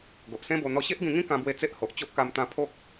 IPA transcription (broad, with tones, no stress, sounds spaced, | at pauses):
ɡ o˨ ʔ s ẽ˦ b o˧ n̪ ɔ˧ ɕ e˦ ʔ ɡ ĩ˧ ŋ ĩ˦ k ã˧ b w e˧ t͡s e˦ ʔ h o˨ ʔ t͡ɕ o˦ ʔ k a˧ m t̪ ã˧ pʰ o˦ k̚